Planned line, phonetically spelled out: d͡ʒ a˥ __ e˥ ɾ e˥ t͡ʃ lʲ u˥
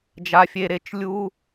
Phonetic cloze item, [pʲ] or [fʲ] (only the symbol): fʲ